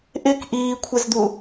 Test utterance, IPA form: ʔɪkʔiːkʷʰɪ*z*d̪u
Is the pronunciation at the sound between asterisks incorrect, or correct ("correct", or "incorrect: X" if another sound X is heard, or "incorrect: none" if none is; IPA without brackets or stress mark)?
correct